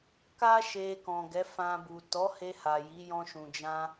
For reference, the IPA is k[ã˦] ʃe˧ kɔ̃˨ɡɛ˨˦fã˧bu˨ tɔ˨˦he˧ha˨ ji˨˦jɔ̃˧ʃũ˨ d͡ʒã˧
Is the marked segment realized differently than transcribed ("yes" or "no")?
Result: yes